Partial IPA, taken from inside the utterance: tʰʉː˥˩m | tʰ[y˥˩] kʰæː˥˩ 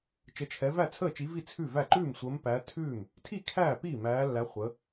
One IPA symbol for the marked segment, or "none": i˥˩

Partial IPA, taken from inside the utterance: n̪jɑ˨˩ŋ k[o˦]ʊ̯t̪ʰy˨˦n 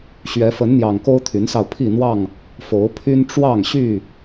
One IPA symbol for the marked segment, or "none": o˦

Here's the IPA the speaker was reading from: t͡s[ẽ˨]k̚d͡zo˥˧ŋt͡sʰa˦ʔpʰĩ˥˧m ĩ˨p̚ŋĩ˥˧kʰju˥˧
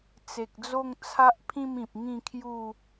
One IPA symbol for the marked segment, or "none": e˨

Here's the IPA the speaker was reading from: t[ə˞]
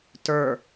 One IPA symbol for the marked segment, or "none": ə˞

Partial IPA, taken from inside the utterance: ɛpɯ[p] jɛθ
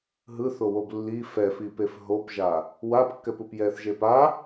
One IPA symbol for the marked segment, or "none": p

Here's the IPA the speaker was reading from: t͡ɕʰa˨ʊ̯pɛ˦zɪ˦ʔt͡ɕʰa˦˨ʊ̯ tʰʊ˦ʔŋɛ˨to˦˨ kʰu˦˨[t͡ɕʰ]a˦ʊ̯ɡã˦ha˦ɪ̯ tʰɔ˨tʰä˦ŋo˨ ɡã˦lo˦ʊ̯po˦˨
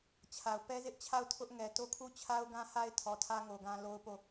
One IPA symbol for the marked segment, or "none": t͡ɕʰ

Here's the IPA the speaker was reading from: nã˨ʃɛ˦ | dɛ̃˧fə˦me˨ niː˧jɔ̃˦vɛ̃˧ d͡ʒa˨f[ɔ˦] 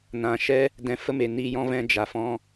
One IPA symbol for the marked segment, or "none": ɔ̃˦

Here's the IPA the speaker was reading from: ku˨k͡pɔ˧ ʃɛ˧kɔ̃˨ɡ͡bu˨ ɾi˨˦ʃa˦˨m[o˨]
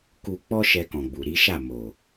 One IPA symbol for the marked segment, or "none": o˨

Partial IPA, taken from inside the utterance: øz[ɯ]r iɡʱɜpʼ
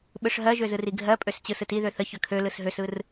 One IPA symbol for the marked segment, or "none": ɯ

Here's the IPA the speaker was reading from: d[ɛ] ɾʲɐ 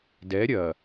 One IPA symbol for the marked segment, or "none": ɛ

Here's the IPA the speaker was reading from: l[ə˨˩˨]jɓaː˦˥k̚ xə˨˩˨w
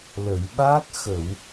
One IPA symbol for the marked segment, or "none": ə˨˩˨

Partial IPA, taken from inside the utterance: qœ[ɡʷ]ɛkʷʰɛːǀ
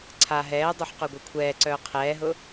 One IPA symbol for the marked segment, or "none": ɡʷ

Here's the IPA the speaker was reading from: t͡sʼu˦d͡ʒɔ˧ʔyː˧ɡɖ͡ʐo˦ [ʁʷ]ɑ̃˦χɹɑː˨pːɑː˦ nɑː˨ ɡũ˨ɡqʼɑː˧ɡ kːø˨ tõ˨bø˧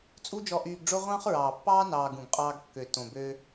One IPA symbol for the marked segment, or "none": ʁʷ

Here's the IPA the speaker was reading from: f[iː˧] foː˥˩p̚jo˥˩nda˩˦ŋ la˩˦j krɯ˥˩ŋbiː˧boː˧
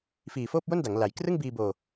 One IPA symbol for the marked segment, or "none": iː˨˩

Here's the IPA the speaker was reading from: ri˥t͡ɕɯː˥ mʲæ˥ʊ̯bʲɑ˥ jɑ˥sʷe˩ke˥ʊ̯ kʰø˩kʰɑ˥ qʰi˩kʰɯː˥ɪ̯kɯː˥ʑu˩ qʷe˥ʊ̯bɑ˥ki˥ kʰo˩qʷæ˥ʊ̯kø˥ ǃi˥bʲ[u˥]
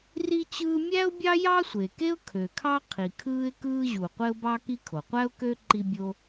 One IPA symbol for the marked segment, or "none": o˥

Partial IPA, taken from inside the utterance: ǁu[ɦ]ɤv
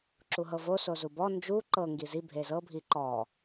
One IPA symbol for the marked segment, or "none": ɦ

